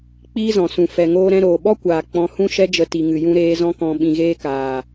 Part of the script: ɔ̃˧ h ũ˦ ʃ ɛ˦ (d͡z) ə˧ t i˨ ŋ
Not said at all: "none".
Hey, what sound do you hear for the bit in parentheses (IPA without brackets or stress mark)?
d͡ʒ